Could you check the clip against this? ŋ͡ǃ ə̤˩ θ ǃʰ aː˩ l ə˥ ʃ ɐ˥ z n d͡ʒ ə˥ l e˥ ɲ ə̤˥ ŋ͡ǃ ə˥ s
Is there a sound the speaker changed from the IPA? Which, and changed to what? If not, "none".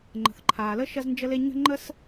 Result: none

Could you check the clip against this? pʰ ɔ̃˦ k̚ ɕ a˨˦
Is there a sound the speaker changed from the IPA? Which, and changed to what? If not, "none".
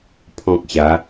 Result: none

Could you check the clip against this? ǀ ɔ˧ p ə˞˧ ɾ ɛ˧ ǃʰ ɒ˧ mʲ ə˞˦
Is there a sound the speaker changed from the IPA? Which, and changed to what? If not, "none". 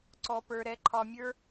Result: none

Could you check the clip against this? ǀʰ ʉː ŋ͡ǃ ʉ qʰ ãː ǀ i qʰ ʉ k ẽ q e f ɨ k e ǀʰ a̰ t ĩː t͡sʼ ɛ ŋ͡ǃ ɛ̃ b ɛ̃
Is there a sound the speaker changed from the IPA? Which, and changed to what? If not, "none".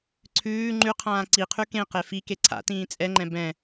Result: ɨ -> i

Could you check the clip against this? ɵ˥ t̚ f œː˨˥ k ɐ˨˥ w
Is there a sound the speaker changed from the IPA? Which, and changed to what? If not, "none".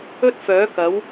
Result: none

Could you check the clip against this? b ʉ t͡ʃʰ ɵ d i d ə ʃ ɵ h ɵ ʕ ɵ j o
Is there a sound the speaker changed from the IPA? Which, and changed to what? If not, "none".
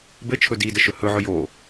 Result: ʉ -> ɘ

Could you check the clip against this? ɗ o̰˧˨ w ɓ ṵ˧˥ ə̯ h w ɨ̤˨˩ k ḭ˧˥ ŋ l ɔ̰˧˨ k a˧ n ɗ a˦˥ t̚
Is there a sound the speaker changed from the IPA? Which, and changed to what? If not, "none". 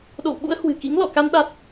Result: none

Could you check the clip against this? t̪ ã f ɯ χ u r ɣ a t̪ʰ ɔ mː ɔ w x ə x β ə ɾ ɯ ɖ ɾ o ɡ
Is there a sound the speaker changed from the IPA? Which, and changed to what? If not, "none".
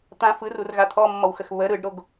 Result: χ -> r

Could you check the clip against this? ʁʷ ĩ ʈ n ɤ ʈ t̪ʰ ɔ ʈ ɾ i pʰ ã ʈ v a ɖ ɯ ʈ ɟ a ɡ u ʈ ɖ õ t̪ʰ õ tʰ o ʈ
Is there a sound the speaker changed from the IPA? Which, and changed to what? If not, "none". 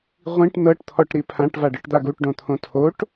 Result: ɟ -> d̪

